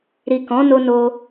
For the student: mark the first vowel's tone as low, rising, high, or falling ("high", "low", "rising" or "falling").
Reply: low